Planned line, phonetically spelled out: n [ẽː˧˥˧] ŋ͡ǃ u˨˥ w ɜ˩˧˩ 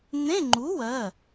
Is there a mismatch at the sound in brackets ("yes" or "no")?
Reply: yes